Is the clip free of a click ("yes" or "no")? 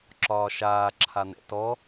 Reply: no